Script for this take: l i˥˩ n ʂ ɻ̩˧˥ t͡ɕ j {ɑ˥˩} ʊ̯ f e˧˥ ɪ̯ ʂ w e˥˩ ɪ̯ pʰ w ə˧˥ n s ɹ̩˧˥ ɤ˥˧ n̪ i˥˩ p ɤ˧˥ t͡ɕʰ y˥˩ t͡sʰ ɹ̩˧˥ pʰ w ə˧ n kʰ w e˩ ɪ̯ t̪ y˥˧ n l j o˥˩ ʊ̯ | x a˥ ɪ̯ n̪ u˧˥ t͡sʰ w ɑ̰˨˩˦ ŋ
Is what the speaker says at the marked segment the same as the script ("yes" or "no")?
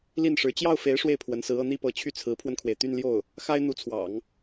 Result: yes